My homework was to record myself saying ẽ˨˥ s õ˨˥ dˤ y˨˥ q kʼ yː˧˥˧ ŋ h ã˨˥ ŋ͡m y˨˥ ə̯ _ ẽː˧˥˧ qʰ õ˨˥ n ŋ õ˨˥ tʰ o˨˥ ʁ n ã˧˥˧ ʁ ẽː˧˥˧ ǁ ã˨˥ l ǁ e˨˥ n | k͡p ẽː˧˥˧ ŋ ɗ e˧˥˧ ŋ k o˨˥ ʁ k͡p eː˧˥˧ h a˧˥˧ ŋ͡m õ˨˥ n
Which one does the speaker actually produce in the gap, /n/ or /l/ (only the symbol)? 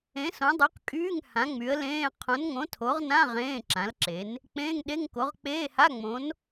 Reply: l